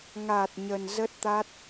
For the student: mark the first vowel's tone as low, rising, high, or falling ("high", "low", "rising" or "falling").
low